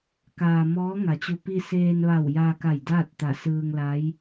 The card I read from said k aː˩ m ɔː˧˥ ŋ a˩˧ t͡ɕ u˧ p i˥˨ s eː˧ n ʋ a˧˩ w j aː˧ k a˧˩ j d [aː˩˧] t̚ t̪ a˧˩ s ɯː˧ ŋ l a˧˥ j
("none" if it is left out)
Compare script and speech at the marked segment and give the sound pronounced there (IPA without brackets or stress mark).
aː˥˨